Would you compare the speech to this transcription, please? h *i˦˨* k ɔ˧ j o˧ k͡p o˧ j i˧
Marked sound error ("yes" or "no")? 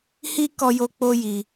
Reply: yes